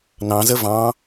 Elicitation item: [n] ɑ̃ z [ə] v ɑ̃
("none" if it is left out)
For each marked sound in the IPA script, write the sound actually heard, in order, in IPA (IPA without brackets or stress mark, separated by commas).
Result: n, ə